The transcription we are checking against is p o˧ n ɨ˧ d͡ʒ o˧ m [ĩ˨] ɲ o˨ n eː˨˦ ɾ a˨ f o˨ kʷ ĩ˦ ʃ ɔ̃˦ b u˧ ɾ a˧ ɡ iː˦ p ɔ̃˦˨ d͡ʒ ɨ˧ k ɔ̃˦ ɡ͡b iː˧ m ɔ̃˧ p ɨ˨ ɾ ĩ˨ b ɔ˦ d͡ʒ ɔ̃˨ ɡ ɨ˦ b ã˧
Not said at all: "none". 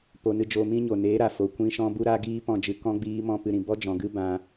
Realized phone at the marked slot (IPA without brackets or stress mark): ĩ˦